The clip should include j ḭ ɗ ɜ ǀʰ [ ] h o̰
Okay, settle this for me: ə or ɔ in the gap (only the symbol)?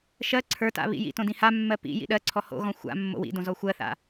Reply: ɔ